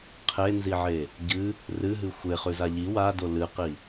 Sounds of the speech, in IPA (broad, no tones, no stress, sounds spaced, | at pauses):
qʰ e n z i ʕ e | ɟ ɨ | r ɨ ɦ ɨ xʷ e χ ʉ z a ʎ i w a d o l ɨ q i